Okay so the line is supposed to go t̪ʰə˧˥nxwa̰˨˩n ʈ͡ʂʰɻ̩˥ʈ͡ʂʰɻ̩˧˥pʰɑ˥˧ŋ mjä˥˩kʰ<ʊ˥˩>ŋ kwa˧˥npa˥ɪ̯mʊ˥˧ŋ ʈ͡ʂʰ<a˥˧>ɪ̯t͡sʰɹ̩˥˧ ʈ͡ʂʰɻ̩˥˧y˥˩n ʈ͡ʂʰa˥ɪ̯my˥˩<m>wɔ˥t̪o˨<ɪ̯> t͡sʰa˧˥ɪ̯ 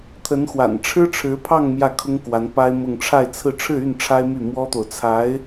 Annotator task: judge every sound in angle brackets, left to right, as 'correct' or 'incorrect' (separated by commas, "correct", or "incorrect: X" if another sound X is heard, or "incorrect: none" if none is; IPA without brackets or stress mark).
incorrect: ʊ˥, correct, correct, incorrect: ʊ̯